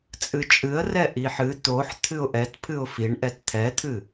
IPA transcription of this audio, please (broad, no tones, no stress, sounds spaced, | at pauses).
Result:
t͡sʼ ɨ t͡ʃʼ ɨ ə̯ r ɛ ʔ i ħ ɨ t̪ o ħ t̪ʰ ɨ ʊ̯ ʔ ɛ t pʰ ɨ ʊ̯ f i ɳ ʔ ɛ t t̪ʰ ɛ t̪ʰ ɨ